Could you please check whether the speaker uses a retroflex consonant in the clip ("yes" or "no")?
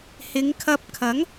no